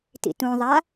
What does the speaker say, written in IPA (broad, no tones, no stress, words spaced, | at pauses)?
tḭtũðˤa